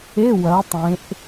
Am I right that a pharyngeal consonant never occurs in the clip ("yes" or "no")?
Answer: yes